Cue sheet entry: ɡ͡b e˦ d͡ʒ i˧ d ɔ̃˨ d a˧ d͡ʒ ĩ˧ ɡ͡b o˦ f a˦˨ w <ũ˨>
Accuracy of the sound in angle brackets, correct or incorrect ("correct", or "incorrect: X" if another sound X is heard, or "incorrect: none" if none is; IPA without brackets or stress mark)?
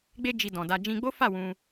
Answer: incorrect: ũ˧